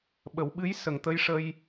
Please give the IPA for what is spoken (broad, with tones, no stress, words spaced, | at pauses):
ɓə˨˩˦wɓɨ˧˥j sə˨˩ŋt̪ə˧jʂə˧j